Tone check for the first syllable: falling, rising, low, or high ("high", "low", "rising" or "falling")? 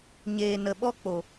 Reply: low